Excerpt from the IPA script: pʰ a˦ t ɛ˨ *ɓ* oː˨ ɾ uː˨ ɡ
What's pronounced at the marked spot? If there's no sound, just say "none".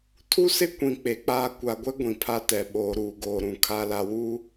ɓ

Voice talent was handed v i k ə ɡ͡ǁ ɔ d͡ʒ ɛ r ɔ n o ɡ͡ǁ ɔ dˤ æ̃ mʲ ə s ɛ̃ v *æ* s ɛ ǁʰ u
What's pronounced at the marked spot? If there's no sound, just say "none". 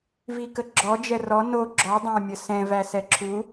æ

